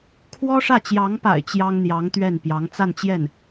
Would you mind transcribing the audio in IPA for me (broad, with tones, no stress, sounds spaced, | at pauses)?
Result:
kʰ w ɔ˥ ʂ ä˥˩ t͡ɕ j ɑ˧˥ ŋ p a̰˨˩ ɪ̯ t͡ɕ j ɑ˥ ŋ n̪ j ɑ˧˥ ŋ t̪ ɥ ɛ˥˩ n p j ɑ˧˥ ŋ t͡s a˥˧ n t͡ɕ j ɛ˥˩ n